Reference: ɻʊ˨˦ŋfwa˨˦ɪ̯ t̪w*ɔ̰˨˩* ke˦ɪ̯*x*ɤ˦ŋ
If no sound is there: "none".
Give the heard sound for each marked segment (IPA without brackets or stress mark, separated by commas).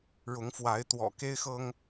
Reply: ɔ̰˨˩, x